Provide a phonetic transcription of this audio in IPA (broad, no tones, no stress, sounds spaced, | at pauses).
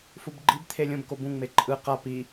f u b ɡ͡ǃ i b t̪ʰ e lʲ õ b k o b ũ ŋ͡m e ǃʼ ɯ q a p i